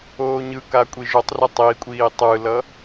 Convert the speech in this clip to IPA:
oː ɲ ɯ k a kʷʼ i ʒ o tˤ r ɛ tˤ i kʷʼ iː tˤ ɯ l ʌ

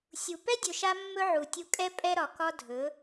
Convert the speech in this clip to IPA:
sʲ u˨ p ɛ˦ dʲ ɵ˨ ʃ a˧ mː ɵ˧ ʕ u˨ tʲ u˧ kʼ ɛ˧ pʼ ɛ˦ ɾ ɒ˨ k ɒ˦ dʱ ɵ˨˦

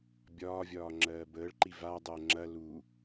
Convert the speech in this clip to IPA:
bʲ ɒː vʲ ɒː ŋ͡ǁ ɜː b əː ɭ ǃ i v a dˤ əː ŋ͡ǁ ɐ l u

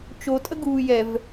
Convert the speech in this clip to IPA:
t͡ʃ o tʼ ə ɡ uː j ɛ v

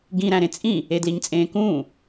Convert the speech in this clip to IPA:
ɡ ĩ ɾ æ̃ ɾ ẽ t͡sʼ ĩ | e d l i ɲ t͡sʼ ẽː k ũː

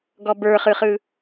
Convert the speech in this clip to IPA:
ɡ ɔ b ə˞ χ ɯ χ ɯ

